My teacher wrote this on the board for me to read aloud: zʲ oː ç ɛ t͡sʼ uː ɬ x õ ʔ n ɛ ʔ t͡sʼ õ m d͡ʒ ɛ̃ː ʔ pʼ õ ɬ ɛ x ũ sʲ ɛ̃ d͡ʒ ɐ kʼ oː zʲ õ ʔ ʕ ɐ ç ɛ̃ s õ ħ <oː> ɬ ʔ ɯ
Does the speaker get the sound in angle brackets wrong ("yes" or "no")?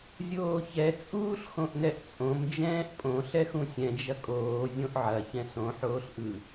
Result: no